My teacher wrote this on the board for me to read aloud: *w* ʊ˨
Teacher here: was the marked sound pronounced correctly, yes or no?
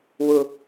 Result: yes